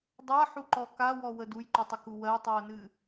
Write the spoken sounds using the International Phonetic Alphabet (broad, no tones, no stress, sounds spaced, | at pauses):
dˤ a ħ u ǃ ɔ k a w ɔ w ə d u j ǃ u tˤ ə k u w ɜ tˤ i o̯ n ɨ